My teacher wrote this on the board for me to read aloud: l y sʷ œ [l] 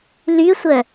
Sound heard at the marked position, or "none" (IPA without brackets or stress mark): none